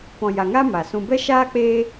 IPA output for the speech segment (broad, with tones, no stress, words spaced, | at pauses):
pɔ̃˨ja˨ŋa˦ ma˨sũ˧ bɛ˦ʃaː˦k͡peː˦